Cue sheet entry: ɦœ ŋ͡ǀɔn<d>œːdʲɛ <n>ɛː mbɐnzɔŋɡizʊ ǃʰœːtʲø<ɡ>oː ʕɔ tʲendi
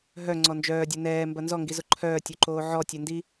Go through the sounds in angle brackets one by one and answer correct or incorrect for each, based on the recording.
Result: incorrect, correct, incorrect

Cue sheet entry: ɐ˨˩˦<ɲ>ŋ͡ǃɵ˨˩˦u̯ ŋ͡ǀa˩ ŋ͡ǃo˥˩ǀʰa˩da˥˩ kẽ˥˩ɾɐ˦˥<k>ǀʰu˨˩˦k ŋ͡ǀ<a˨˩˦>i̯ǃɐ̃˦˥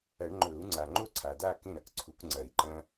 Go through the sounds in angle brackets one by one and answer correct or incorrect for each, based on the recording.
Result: incorrect, correct, incorrect

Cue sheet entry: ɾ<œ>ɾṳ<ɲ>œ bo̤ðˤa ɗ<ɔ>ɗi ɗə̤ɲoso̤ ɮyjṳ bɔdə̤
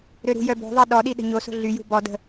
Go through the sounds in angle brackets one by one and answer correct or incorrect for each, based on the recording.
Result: incorrect, incorrect, correct

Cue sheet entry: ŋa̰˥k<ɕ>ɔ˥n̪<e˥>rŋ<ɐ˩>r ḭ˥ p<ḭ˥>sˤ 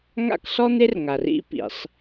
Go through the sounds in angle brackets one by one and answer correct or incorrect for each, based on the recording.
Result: incorrect, correct, incorrect, incorrect

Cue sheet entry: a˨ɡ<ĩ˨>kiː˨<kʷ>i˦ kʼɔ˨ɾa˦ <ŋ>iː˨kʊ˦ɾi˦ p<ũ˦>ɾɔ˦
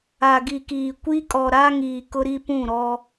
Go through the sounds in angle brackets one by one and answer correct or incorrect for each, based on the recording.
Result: incorrect, correct, correct, incorrect

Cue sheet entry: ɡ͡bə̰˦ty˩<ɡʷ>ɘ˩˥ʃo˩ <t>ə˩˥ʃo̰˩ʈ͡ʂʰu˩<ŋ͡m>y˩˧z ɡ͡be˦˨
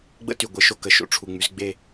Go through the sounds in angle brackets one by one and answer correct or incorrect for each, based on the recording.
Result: correct, incorrect, correct

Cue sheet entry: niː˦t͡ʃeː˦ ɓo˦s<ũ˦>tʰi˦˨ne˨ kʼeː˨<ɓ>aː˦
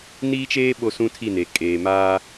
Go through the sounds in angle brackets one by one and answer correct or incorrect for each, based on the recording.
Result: correct, incorrect

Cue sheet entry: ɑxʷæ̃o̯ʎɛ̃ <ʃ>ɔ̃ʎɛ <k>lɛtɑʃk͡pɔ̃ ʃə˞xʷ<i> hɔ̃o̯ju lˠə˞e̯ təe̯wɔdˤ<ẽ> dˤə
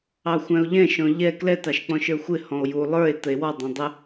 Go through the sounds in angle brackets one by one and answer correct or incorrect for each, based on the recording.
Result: correct, correct, incorrect, incorrect

